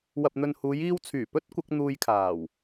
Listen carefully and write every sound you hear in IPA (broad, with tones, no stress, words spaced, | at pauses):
wɐ˨p̚n̪ɵ˨nhuː˨˧j iː˧wt͡sʰyː˨˩ pɵ˥t̚ kʷɐ˨˥k̚n̪uː˧jkʰaː˨˩w